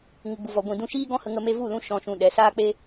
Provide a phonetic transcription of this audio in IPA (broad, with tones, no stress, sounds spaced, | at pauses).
ŋ u˨ ɡ͡b u˨ v ɔ˨ ɡʷ ĩ˨ d ũ˧ ʃ iː˦ ɡ ɔ̃˦ h ə˧ ŋ ə˧ m e˧ v u˦˨ l ũ˧ ʃ ɔ̃˧ ʃ ũ˧ ɗ ɛ˨˦ s aː˦ k͡p e˦